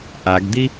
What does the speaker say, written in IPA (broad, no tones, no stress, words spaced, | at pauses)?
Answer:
ʔaɡd̪i